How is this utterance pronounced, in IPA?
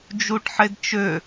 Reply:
d͡ʒ u ʈ ħ e d t͡ʃ ø

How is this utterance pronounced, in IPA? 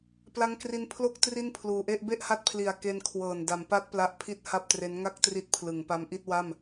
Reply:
p l a˦˥ ŋ k r i˧ n pʰ l o˥˩ k̚ t r i˥˩ n pʰ l uː˨˩ ʔ e˥˩ ʔ b e˥˩ ʔ h a˦˥ t̚ pʰ l i˨˩ a̯ k e˧ n kʰ w ɤː˨˩ n d a˩˦ m p a˦˥ t̚ p l a˦˥ ʔ pʰ i˥˩ t̚ h a˥˩ p̚ t r e˦˥ n ŋ a˥˩ k̚ t r i˦˥ t̚ pʰ l ɯ˩˦ ŋ p a˦˥ m ʔ i˥˩ t̚ w a˥˩ m

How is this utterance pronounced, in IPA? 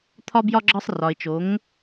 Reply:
t̪ʰ ɒ˧ b j ɒ˧ ɡ͡ǁ ɒ˧ sˤ r ɒ˩ ɪ̯ t͡ʃ o˩˧ ŋ

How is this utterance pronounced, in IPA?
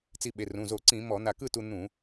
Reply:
t͡s i˧ ɓ e˩˧˩ r ũ˩˧˩ z o˧˩˧ ǀ ĩ˧˩˧ m ɔ˧˩˧ n̪ a˧˩ k ɯ˥˧ t u˧ n̪ ũ˧˩˧

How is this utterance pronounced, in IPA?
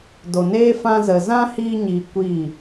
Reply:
d o˨ n eː˦ f ã˧ z ə˨ z ã˦ h iː˧ ɲ iː˨ kʷ iː˦˨

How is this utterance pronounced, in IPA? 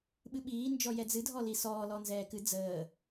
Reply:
ɓ ɨ ɓ iː n d͡ʒ ɔ j ɛ d͡z ɨ dʱ ɔ l i s ɔː l ɔ n z ɛː k ɨ d͡z əː

